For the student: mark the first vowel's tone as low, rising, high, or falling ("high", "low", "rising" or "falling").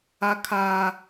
high